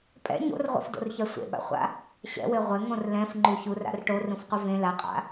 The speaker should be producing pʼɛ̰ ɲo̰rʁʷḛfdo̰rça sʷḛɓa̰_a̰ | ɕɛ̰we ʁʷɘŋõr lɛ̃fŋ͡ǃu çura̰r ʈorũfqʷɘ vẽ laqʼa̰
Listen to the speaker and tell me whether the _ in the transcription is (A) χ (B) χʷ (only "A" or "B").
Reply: B